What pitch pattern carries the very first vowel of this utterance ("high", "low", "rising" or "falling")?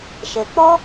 low